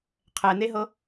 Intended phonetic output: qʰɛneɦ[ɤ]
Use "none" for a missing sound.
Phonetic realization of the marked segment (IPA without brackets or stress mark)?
ɤ